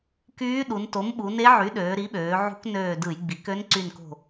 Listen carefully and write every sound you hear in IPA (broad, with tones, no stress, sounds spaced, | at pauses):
k yː˧˥ ɗ u˩˧ n t o˩˥ m ɓ u˩˧ n e˧˥ ʕ y˩˥ ɗ øː˩˧ ɾ i˩˥ ɓ øː˩˧ ʕ ṳ˧˥ k n øː˧˩ d ɯ˧˩˧ j ɡ͡b i˩˧ k ø˧˥ n ǀ y˧˩ n k o̤˧˩